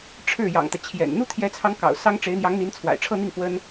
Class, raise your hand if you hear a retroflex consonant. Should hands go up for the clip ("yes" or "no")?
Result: yes